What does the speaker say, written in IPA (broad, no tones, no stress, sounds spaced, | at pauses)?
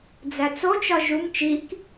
d͡z æ t͡s o t͡ʃ ɒ ʒ u m t͡ʃ i k